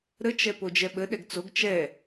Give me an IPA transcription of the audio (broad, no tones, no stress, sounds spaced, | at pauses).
ɾ ə t͡ʃ ɛ p o d͡ʒ ɛ ɓ ə ɗ ɛ ɡ t͡s o ɡ t͡ʃ ɛ